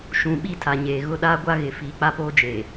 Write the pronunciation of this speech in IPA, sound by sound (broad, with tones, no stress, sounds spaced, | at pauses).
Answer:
ʃ ũ˨ ɓ i˦˨ tʰ a˨ ɲ eː˨ ɣ ʊ˦ ɗ aː˦ ɡʷ a˦ ɣ ɪ˨ f iː˨ k͡p a˦ p oː˦ d͡ʒ eː˨